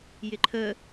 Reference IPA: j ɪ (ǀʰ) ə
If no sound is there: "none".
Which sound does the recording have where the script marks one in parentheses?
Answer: ǃʰ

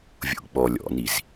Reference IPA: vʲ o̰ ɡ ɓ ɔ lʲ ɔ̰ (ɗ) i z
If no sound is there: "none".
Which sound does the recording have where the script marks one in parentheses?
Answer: n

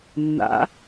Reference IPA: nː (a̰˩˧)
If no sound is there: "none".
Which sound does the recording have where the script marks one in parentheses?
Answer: a̰˩˧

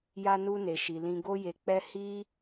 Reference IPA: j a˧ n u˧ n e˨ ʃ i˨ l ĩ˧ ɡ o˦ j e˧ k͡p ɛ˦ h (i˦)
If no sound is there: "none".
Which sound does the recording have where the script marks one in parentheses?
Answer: i˦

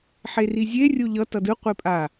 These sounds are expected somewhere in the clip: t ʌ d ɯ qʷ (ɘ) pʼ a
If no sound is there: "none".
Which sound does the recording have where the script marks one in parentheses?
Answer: e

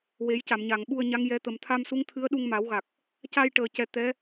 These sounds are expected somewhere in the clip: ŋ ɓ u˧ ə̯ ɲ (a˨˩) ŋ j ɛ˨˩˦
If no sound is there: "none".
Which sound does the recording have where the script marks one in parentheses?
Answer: a˧˥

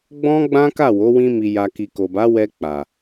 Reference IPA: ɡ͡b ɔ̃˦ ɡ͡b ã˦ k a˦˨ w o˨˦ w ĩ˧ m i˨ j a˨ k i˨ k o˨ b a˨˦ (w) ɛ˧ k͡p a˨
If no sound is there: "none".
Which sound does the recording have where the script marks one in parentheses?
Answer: w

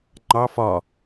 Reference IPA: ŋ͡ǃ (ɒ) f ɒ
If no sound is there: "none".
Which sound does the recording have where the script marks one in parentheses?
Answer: ɑ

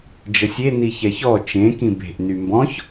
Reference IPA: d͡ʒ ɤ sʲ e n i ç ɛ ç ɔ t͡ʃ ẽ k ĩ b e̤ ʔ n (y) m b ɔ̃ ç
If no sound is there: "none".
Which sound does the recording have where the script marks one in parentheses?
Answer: y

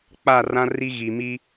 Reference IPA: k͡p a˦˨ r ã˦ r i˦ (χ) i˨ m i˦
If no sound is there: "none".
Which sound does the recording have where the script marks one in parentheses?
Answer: ɣ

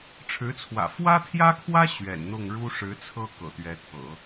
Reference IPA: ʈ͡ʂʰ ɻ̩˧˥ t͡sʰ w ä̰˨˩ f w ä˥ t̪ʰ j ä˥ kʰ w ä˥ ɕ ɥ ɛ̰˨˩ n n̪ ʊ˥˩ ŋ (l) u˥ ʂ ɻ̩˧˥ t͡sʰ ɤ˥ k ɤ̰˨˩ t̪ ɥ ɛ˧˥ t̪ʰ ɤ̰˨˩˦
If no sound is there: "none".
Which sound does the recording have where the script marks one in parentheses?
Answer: ɻ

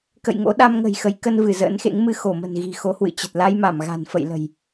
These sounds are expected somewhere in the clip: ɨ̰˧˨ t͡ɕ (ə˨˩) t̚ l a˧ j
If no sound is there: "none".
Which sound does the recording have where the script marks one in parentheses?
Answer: ə˨˩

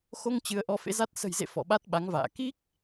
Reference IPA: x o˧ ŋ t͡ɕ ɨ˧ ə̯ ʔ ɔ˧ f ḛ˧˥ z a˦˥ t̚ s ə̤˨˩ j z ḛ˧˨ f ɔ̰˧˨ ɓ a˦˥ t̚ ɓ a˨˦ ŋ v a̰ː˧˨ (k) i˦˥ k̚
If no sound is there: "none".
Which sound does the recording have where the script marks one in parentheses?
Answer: k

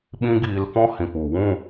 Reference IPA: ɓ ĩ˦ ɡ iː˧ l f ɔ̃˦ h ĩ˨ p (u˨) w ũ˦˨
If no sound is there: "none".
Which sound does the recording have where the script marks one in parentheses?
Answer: u˨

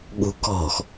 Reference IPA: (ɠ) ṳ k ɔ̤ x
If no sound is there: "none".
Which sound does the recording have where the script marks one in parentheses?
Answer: ɠ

